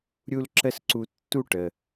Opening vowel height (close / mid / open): close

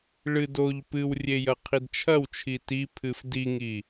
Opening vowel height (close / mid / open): close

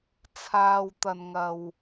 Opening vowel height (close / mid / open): open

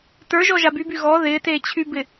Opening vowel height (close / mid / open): mid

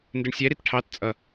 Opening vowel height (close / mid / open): close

